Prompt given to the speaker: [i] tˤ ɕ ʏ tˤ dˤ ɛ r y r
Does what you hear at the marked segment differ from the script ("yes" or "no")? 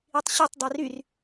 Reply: no